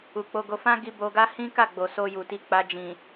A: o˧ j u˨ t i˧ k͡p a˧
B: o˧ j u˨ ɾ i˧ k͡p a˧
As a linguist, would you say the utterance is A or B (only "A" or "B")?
A